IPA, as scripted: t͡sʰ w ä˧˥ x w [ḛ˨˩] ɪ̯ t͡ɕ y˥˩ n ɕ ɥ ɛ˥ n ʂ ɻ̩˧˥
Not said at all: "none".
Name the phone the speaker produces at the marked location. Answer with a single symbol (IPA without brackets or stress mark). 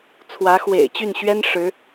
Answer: ḛ˨˩